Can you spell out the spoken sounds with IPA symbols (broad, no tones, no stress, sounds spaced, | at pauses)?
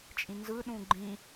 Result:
t͡ʃʼ ĩ n z ɯ ɗ ũ ɡ͡ǃ ĩ